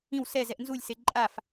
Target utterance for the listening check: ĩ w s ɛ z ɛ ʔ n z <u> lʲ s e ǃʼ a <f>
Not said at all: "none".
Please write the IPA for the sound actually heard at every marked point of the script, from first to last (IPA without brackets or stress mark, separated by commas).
u, f